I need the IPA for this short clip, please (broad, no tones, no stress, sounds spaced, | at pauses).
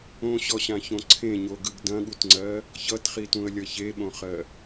õ ɕ ɔ ɕ ã ç õ ǀʰ ẽ ɲ o ɡ ɯ ɡ d ɐ̃ ɠ u t ŋ͡ǀ ɜ | ç ʌ t χ i t ũ ə̯ lʲ ʌ ç e ɓ õ χ ɜ